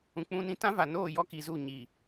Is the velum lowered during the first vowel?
yes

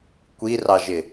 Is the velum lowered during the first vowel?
no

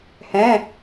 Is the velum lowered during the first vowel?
yes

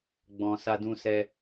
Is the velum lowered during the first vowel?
yes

